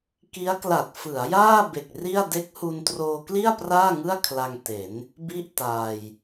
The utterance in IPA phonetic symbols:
k i˦˥ a̯ k l a˨˩ t̚ f ɯ˩˦ a̯ j aː˥˩ b e˨˩ k̚ r i˥˩ a̯ d e˦˥ k̚ h u˧ n t r oː˧ k l i˥˩ a̯ p r aː˥˩ ŋ ɯ˥˩ a̯ kʰ l a˧ ŋ t e˩˦ n | b i˥˩ ʔ t aː˧ j

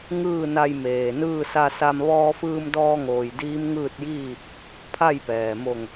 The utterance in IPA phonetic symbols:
ŋ ɯː˥˨ n a˧ j m eː˩ n ɯː˥˨ s a˧ s a˧ m ʋ ɔː˧ f ɯː˧ m d ɔː˧ ŋ oː˩ j d iː˧˥ m ŋ ɯː˥˨ t̚ j iː˥˨ | pʰ a˥˨ j p ɛː˩ m o˧˩ ŋ

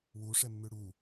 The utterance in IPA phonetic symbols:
w u ʂ ɛ mː ʉ ɽ u

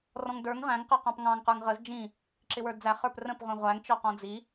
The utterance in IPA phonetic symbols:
r ɔ̃ ŋ d ə˞ ŋ ʁ æ̃ ŋ q ə˞ q ɑ̃ p ŋ ɑ̃ ŋ q ə˞ ŋ ʁ ə z d͡ʒ ĩ | ǁ ɪ w ə˞ d d͡z æ χ ə˞ p r ə̃ p ʁʷ ĩ ʁʷ æ ŋ t͡ʃ ɔ q ɔ̃ d͡z i

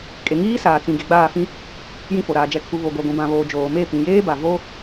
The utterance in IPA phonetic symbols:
kʼ e˨ ŋ iː˦ s aː˨ t͡s ĩ˨ ɡ e˨ ɡ͡b aː˦˨ f ĩ˦ | j ĩ˦˨ f o˨ ɾ aː˨ d͡ʒ ɛ˨ kʰ u˨ β o˨ ɡʷ a˨ ɡʷ ĩ˨ b ã˨ β oː˨ d͡ʒ oː˨ m e˦˨ p ĩ˨ j eː˦ b a˨ v o˦

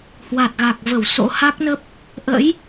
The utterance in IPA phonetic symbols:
h w a˨˩ t̚ ɣ a˨˩ k̚ v ə˧˩ w s o̰˧˥ h a˦˥ k̚ n ə˦˥ p̚ | ʔ ə̰˧˥ j

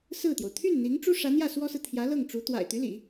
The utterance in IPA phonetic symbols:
s ɹ̩˥˩ t̪ j o˩ ʊ̯ t̪ʰ y˥˩ n n̪ i˧˥ ŋ ʈ͡ʂ u˥ ʂ ä˧˥ n̪ j ä˥˩ s w ɔ˥ s ɹ̩˨ t̪ʰ j ä˧˥ l ɤ˥˩ ŋ ʈ͡ʂ u˧˥ t̪ w a̰˨˩ ɪ̯ t̪ y˧˥ l ḭ˨˩˦

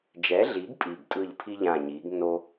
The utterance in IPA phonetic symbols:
d͡ʒ ɛ˨˥ ɮ i˨˥ ɡ pʼ i˨˩ ɡ tʼ ɯ˦˨ ʎ pʰ i˥ ʎ ãː˦˨ ɲ iː˨˥ ɡ nː o˥

